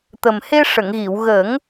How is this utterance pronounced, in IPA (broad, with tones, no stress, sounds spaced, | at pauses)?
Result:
t̪ ə˨˩ m h e˧ ʂ ə˨˩˨ ŋ ɣ i˨˩˨ w ɣ ə˨˩˦ ŋ